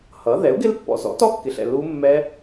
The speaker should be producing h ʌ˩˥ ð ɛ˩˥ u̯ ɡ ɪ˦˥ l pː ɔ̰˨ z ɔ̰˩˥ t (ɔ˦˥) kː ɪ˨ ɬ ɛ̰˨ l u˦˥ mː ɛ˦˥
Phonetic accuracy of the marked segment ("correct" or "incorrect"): correct